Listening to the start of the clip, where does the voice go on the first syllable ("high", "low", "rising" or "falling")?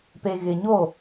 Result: low